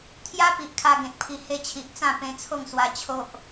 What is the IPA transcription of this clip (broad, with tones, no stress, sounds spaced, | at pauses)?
t̪ʰ j a˦ p i˨ ʔ kʰ a˧ ɡ ẽ˨ t̚ pʰ i˧ h e˧ t͡ɕʰ i˨ ʔ t͡s ã˥˧ p ẽ˧ t͡sʰ o˥˧ ŋ s w a˧ t͡ɕʰ o˦ ʔ